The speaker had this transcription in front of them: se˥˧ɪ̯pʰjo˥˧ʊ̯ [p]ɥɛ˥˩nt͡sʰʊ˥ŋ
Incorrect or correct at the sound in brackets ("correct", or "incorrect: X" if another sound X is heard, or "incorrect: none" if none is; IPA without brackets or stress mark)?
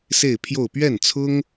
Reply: correct